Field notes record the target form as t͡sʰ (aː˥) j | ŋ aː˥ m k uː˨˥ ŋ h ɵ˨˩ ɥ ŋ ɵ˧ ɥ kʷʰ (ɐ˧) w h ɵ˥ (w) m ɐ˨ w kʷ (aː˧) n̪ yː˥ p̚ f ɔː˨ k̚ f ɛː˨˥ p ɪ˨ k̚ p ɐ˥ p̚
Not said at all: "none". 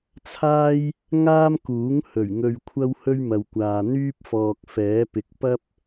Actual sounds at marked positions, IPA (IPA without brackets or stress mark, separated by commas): aː˥, ɐ˥, ɥ, aː˨